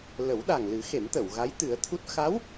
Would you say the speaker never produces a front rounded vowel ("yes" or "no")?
yes